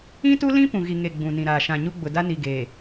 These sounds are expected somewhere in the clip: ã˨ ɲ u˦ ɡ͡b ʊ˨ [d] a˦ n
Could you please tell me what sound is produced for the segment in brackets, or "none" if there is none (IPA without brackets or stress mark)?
d